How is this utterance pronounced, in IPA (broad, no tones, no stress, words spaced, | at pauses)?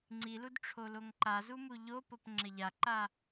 ŋ͡ǀilud ʈ͡ʂʰoloŋǃazu muʎopop ŋ͡ǁɪʎaǃa